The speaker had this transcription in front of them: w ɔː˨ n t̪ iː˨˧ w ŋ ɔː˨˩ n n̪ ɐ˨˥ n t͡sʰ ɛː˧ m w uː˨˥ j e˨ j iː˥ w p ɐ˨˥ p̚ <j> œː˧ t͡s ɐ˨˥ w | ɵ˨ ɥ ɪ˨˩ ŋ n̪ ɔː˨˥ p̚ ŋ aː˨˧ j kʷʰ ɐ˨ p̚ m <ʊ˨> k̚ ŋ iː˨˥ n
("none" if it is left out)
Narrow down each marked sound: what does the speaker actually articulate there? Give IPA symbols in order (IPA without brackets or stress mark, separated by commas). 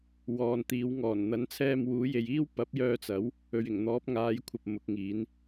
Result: j, ʊ˨˥